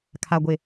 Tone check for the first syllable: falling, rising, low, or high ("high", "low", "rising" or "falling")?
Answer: low